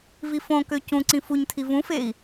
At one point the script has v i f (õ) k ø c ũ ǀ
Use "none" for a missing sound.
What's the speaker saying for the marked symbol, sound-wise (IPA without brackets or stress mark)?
õ